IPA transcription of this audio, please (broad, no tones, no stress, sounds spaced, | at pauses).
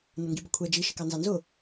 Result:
n ə ŋ ɡ i b ə kʷʰ ɛ d͡ʒ i ʃ ɪ k ɑ n z ɑ n z ʊ